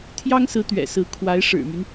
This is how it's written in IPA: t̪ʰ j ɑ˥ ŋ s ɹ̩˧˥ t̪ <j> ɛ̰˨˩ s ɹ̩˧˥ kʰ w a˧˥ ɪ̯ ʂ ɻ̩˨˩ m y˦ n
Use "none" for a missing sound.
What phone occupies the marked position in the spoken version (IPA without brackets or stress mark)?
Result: ɥ